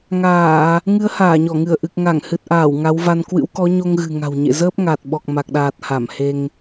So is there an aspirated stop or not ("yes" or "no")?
no